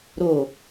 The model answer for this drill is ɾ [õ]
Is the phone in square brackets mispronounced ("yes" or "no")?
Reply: yes